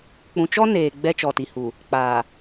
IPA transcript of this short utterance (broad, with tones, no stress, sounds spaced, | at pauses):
k͡p ũ˨ t͡ʃ ɔ˦ n eː˨ ɡ͡b ɛ˦ t͡ʃ ɔ˨ t i˨ h u˨ | k͡p aː˨